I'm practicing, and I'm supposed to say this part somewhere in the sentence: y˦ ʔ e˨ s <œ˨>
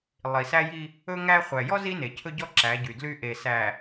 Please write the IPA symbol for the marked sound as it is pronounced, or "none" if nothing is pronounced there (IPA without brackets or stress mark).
æ˨